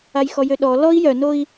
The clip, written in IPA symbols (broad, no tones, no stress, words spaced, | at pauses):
ajxɔjøɗɔ lɔi̯ jœnoi̯